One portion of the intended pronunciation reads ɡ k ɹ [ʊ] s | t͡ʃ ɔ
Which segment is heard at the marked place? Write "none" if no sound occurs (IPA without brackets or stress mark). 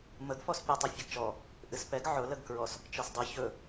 ɔ